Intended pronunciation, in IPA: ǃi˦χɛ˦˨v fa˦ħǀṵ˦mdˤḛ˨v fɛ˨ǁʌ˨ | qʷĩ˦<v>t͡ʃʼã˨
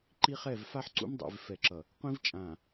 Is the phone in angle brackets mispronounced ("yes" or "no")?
no